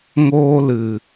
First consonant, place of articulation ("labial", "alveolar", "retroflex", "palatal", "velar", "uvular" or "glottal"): velar